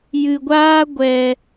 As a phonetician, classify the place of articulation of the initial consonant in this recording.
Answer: palatal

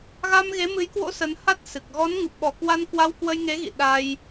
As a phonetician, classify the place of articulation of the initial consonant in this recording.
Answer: velar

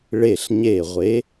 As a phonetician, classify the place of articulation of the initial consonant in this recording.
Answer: retroflex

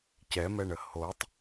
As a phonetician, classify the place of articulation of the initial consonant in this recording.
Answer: palatal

